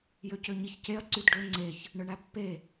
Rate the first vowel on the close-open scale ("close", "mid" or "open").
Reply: mid